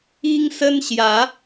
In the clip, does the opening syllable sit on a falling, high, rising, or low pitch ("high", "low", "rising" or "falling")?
high